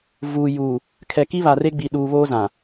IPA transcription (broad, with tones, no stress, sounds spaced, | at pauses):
v uː˨ j uː˨ | kʰ ɛ˨ k i˦ β a˨ r e˦ ɡ͡b i˨ ɗ uː˨ β oː˦ z ã˨